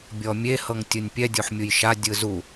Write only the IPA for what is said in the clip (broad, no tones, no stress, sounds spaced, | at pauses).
bʲ ɔ mʲ e h ɤ ŋ tʲ ɯ nʲ pʲ ɛ dʲ o ħ mʲ u j ʃ a dʲ ɯ z u